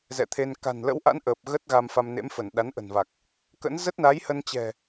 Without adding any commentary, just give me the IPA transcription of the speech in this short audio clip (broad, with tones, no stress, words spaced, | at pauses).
zɛ̰˧˨t̪ʰe˧n ka̤˨˩nlə̰˧˥wʔa̰˧˥nʔəː˨˩p̚ ɣə˦˥t̚ɣa˧m fa˧mnḛ˧˥mfə˧˩n ɗa˨˦nʔə̤˨˩nva˨˩k̚ | kə̰˧˥n zə˦˥t̚na˨˦jhə˧nt͡ɕɛ̤˨˩